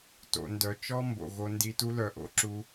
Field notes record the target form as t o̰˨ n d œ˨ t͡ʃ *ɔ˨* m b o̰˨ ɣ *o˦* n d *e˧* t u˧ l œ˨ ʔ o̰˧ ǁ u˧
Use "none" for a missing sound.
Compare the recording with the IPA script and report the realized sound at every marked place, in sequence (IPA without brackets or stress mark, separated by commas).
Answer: ɔ˦, o˧, i˧